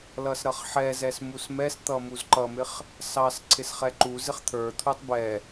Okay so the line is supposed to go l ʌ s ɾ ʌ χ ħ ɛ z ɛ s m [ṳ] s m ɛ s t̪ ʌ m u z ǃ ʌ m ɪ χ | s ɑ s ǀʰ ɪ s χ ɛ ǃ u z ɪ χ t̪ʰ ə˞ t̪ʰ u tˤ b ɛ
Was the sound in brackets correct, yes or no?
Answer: no